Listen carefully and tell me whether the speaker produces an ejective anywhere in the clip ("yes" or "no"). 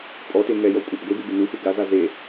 yes